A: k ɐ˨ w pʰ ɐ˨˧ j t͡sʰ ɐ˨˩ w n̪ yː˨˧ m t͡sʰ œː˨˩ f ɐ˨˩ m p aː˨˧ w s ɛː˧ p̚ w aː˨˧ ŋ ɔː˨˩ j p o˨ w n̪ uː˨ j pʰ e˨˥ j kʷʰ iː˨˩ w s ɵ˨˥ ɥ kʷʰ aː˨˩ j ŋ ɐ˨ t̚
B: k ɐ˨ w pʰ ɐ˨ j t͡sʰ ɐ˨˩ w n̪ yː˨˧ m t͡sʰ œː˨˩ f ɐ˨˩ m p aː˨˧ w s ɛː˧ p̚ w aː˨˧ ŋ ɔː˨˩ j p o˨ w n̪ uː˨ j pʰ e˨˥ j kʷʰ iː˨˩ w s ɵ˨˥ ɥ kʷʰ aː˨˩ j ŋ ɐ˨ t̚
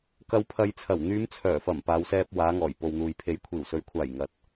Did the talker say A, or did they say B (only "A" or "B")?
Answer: B